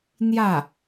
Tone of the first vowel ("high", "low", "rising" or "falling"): falling